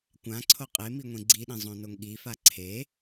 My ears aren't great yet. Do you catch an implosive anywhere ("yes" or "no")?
yes